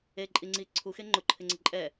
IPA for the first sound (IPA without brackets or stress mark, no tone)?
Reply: e